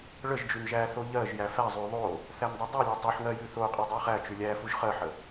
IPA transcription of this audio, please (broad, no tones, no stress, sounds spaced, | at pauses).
ɭ ə ʒ d͡ʒ ʉ n ʒ æ θ o ʎ ɜ ʒ j æ f æ zˤ ʉ ðˤ o | θ æ n dˤ ɛ dˤ i lʲ ɛ tˤ o ħ ŋ ɜ j ʉ θ o qʼ i dˤ æ χ æ t͡ʃ ʉ lʲ æ f u ʒ χ ɜ ħ ə